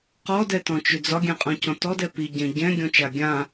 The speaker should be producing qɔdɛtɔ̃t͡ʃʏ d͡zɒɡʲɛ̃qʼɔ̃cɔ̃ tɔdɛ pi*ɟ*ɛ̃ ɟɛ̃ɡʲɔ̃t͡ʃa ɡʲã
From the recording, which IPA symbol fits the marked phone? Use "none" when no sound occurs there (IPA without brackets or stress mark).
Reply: ɟ